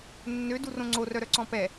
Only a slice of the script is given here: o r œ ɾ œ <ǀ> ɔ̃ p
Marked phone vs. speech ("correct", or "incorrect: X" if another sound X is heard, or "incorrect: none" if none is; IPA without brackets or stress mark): correct